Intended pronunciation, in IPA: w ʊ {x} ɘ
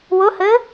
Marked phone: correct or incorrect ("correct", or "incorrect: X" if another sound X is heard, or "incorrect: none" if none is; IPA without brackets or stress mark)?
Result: incorrect: h